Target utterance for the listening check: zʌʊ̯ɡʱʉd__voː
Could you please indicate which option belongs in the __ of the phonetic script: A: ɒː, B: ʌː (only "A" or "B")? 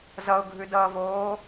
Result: B